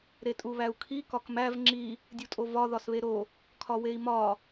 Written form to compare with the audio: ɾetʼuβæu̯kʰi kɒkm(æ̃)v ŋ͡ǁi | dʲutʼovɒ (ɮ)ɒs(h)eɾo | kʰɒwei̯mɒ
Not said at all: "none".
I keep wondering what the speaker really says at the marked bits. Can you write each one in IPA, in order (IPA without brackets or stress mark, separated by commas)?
æ, ð, β